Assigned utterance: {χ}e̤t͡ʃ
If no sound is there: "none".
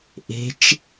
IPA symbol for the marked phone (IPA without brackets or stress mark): ʔ